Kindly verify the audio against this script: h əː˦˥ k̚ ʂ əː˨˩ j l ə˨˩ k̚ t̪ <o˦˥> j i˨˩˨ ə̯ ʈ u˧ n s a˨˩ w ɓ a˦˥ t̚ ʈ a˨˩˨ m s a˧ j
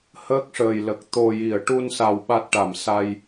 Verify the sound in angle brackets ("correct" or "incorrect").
incorrect